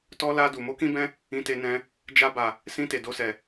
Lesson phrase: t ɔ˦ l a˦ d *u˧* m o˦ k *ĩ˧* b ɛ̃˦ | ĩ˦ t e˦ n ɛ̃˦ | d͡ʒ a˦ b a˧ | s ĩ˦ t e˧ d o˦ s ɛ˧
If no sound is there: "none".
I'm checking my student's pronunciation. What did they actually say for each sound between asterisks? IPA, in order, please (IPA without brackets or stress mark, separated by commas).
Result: u˧, ĩ˦